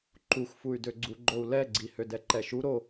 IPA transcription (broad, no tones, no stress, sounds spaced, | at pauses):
ǃ u xʷ f u y̯ d ø ɡ͡ǀ u ɡ͡ǃ o u̯ l ɛ ɡ͡ǀ i h ø d ɛ ǃ ɛ ʃ u ɾ o